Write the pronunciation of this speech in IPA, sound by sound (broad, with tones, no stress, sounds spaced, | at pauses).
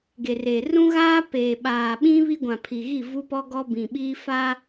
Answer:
ɡ e˨ r e˨ r ũ˦ ɣ aː˦ p eː˨ ɓ aː˨ ɓ ĩ˦ β i˦ ɡʷ ã˨ pʰ i˨ ɣ i˦˨ v u˦ p ɔ˦ ɡ ɔ˦ b ĩ˨ ɓ iː˦ f a˦